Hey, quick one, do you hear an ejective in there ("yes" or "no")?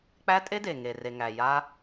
yes